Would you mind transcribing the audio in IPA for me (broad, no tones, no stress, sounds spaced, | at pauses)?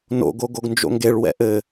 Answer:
n o̰ ɡ o ɡ o ɡ n d͡ʒ o̰ ŋ ɡ e ɭ w ɛ̰ ʔ ɘ